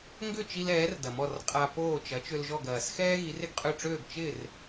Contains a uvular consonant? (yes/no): yes